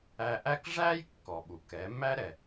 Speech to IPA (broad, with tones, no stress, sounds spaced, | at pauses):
æ˧ ʔ æ˥ k ʐ æ˥ j kː ɔ˩ ɓ u˩ k ɛ˩˧ m æ˥ ɾ ɛ˩